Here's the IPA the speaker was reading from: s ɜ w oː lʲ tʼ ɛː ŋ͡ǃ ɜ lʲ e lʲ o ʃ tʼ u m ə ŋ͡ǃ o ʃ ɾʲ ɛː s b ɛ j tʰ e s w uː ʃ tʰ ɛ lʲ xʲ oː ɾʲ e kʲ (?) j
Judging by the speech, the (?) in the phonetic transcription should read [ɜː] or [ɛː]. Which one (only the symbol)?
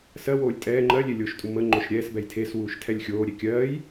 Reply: ɜː